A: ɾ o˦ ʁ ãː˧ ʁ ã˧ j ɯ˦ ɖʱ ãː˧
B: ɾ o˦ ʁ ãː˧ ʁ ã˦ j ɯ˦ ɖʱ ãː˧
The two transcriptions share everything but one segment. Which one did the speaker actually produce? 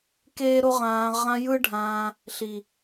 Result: A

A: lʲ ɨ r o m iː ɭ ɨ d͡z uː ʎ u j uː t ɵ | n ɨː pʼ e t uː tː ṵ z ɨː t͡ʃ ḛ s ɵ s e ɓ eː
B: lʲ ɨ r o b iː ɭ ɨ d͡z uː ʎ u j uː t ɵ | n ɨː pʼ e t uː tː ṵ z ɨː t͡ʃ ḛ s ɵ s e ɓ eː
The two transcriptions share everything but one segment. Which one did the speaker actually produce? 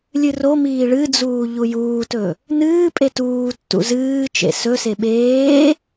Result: A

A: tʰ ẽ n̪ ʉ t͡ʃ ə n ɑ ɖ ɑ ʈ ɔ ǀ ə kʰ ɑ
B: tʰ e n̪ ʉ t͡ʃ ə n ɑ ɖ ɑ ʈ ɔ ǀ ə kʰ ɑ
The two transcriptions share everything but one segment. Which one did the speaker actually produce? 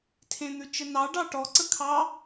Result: A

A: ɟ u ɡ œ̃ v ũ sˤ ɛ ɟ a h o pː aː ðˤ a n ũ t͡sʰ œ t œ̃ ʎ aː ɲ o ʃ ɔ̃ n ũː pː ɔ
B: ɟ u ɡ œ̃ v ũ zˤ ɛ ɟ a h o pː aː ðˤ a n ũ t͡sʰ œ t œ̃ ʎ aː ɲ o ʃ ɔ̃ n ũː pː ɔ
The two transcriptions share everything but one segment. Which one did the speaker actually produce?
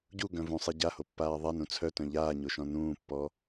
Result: A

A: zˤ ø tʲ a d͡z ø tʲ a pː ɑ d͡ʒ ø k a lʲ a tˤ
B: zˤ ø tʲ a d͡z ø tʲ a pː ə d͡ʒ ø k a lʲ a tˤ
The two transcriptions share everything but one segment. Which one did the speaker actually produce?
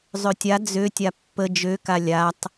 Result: B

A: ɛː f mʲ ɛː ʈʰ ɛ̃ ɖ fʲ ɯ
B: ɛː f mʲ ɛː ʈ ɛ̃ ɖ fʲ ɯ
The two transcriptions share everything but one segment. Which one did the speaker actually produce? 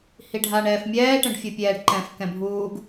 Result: B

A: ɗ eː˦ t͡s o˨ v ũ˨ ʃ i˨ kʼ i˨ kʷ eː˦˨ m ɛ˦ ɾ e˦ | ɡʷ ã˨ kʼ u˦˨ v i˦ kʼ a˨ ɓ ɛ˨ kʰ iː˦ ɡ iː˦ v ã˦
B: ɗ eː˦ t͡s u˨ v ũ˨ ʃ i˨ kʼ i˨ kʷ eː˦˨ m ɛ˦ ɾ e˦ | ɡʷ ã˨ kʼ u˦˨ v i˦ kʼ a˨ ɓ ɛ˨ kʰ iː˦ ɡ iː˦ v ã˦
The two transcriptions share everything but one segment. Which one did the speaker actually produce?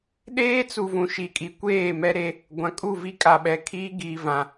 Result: B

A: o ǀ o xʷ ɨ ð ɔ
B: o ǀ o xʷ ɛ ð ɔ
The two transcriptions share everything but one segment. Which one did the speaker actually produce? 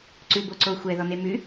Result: B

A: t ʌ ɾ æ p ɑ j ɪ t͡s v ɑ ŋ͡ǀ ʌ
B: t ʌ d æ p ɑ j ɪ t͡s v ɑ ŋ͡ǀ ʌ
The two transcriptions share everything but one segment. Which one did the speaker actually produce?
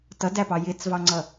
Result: B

